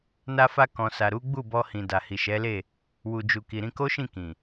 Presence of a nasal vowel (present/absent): present